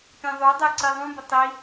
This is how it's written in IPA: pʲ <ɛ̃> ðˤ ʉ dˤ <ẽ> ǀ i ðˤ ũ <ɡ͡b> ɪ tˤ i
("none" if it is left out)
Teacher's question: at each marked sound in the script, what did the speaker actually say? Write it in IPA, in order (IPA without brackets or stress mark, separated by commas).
ẽ, e, b